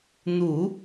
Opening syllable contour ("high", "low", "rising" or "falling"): low